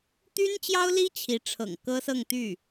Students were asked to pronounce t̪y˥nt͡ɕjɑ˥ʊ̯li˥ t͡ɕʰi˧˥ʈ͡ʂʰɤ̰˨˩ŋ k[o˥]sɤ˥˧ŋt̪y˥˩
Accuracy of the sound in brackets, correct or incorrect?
incorrect